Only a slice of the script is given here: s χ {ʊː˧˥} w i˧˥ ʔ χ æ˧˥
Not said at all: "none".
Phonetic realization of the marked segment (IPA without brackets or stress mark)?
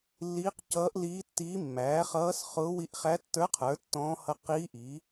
ʊː˧˥